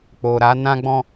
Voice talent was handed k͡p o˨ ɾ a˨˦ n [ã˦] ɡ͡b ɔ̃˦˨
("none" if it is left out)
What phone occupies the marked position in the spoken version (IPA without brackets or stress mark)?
ã˦